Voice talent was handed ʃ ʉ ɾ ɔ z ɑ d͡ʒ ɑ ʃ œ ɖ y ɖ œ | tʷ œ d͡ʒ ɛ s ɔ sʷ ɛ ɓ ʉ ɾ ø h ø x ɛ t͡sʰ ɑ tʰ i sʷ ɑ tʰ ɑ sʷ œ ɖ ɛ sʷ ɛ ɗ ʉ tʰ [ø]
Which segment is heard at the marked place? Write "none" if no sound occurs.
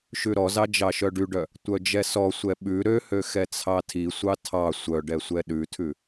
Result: ʉ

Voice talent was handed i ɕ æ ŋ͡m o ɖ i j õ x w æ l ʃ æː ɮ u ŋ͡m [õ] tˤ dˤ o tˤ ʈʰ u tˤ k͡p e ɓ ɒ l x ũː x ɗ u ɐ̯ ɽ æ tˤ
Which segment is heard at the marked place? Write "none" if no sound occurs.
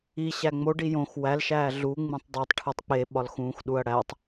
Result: ũ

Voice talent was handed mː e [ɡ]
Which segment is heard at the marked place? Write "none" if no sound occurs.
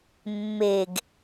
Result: ɡ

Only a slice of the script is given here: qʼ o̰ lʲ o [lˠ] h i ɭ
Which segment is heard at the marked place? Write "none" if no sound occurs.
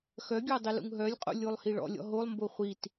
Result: lˠ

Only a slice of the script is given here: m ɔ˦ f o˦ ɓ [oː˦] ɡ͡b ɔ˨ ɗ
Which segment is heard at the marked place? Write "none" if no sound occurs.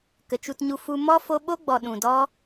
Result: o˦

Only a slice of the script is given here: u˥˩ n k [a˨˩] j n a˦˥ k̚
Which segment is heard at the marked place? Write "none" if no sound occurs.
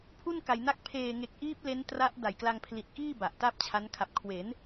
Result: a˧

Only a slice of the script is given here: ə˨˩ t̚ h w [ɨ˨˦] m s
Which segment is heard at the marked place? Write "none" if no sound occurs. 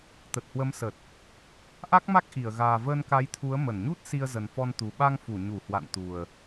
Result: ə˨˦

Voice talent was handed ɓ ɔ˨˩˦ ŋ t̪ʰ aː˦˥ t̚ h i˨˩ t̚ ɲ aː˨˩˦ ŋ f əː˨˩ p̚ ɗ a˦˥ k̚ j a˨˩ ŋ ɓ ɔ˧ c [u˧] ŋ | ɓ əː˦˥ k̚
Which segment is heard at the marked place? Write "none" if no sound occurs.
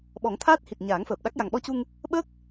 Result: u˧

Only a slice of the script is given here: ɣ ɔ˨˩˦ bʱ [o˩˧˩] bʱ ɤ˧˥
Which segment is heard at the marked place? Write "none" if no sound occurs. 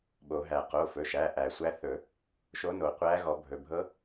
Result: ɵ˩˧˩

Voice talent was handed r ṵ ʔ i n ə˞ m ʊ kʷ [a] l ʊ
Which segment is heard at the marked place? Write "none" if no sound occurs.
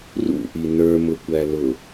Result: æ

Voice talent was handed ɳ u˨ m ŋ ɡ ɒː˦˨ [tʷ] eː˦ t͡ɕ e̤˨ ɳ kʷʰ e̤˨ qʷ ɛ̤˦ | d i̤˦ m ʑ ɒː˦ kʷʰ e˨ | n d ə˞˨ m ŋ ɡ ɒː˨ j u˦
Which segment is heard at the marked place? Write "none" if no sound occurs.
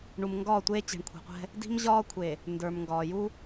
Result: tʷ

